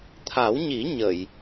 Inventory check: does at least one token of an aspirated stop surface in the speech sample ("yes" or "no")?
yes